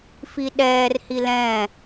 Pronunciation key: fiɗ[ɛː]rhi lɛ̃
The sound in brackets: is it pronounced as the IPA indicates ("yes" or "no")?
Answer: yes